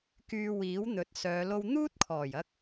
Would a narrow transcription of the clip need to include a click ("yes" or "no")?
no